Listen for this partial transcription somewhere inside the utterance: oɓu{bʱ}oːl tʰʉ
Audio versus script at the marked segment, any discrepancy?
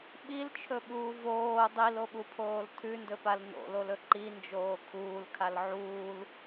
yes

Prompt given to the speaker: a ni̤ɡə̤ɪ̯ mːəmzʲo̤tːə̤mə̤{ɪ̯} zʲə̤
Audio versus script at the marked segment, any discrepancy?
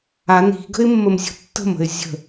no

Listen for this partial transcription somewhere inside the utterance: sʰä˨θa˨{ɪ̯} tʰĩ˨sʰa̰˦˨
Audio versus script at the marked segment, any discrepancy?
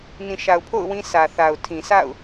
yes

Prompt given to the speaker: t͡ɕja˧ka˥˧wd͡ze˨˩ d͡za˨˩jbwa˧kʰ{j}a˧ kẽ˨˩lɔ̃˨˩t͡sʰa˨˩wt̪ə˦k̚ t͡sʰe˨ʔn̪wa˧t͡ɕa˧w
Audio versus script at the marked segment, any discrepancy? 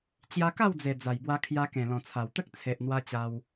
no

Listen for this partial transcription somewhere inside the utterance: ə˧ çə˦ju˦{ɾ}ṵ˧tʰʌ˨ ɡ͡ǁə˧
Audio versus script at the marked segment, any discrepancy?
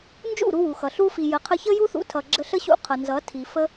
yes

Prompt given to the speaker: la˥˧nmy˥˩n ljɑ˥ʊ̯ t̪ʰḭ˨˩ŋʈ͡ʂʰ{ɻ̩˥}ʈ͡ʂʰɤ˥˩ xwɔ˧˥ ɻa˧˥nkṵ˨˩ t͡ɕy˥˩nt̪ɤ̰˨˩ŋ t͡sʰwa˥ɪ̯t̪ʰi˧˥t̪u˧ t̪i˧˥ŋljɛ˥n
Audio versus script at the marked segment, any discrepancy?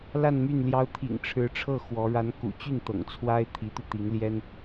yes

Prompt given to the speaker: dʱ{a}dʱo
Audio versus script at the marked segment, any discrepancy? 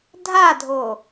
no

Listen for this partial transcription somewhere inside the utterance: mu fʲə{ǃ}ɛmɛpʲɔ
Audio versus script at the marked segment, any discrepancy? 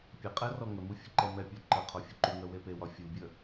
no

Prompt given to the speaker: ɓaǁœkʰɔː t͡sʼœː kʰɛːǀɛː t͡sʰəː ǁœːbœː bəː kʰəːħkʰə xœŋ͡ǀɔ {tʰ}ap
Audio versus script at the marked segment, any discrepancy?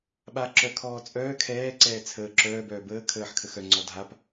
yes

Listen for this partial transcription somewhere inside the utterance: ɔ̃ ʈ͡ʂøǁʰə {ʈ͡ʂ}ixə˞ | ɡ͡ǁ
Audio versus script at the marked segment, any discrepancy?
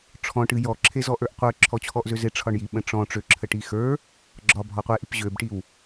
yes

